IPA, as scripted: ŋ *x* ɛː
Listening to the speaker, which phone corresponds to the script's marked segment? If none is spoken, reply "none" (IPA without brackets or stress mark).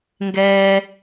ɡ